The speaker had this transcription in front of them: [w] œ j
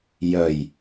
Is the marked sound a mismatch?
yes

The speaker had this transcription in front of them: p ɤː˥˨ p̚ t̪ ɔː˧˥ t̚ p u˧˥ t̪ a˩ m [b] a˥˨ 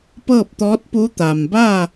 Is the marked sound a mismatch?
no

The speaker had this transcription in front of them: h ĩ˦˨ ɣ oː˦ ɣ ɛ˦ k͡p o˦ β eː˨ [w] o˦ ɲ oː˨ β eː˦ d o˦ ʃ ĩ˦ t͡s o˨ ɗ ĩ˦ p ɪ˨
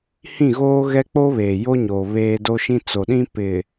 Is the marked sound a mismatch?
yes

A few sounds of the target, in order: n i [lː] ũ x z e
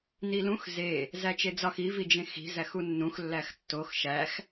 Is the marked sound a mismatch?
yes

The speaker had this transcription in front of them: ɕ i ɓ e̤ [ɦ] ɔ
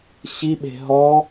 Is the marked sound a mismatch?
no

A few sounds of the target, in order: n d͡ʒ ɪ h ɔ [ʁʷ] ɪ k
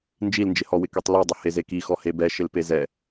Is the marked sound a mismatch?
yes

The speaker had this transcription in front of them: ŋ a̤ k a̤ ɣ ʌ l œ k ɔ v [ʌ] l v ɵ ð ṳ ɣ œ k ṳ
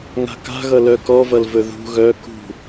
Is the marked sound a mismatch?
no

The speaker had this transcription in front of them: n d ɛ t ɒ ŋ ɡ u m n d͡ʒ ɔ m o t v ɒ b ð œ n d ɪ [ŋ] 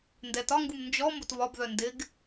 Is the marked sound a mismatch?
yes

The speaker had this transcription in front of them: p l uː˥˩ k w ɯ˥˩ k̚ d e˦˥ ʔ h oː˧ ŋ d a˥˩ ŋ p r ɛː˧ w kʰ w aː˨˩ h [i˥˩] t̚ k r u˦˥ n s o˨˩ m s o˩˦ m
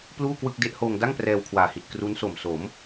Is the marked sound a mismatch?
yes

